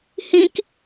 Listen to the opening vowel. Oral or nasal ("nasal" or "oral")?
nasal